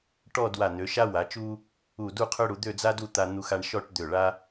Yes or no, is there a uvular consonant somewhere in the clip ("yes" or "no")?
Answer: yes